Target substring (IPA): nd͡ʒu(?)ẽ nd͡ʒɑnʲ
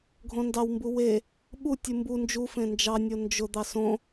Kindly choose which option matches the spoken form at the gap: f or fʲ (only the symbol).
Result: f